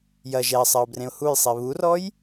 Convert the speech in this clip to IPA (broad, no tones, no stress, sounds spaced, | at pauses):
j ɐ ʒ ɛ ɪ̯ sˤ ɪ ʊ̯ b r ẽ ʊ̯ h u j sˤ i β u r ɔ j